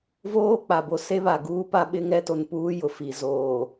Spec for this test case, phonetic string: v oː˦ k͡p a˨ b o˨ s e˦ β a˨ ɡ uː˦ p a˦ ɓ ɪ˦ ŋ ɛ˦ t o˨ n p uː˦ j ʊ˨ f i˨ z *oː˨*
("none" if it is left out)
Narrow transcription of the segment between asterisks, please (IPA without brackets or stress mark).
oː˨